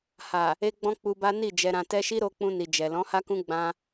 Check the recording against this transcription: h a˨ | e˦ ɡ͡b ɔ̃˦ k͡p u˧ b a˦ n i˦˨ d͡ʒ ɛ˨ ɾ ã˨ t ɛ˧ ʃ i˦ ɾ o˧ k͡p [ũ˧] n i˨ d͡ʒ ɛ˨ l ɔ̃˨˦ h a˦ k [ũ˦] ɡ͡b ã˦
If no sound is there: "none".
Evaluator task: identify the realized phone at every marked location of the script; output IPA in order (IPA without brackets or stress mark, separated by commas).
ũ˧, ũ˦